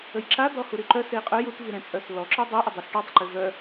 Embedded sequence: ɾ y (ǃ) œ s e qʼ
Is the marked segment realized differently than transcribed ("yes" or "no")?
no